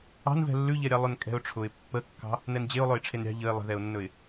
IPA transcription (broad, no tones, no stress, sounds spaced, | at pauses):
ɑ̤ n v ɛ̤ lː ʉ ʎ ɛ ɾʲ ɑ lˠ ɵ n kʼ ɛ̤ ʊ̯ ʈ͡ʂʰ ʊ ɪ̯ pː ə kː ɑ̤ | n ɛ n d͡ʑ e ʊ̯ lˠ ɵ ɪ̯ ʈ͡ʂʰ e n ɾʲ ɑ̤ ʎ ə ɪ̯ lˠ ə̤ ð ɛ ʊ̯ nː ɵ ɪ̯